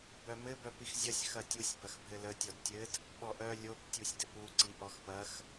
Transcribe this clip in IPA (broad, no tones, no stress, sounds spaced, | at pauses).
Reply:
b œ m ɘ b œ p i x zʲ ɐ sʲ x ɐ tʲ u sʲ b ɐ x bʱ ɘ l ə tʲ ɔ d tʲ ɘ d | ɓ ɔ ʔ œ lʲ o p tʲ u sʲ d ɘ p u ǀ i ʔ ɔ x p ɐ x